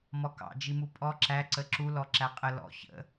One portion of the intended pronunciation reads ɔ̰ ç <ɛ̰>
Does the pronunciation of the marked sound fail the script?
yes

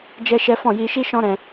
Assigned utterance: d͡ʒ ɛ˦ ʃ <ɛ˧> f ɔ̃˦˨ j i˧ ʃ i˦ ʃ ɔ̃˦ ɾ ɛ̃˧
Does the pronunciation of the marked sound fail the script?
yes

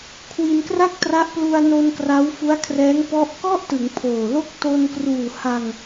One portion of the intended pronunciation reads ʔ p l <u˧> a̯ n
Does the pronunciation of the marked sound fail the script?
no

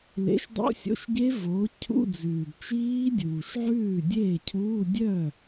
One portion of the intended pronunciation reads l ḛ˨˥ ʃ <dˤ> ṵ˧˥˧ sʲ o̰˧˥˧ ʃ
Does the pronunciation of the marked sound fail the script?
no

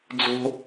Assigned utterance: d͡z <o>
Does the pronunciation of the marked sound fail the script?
yes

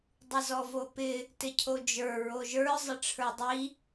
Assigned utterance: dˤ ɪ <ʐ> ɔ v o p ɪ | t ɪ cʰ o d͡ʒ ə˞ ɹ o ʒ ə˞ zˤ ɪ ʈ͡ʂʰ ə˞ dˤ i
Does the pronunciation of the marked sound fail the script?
yes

